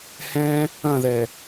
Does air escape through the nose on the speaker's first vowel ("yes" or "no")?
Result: yes